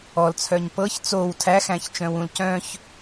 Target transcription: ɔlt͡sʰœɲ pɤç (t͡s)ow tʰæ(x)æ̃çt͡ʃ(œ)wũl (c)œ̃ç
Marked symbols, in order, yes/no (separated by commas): yes, yes, no, yes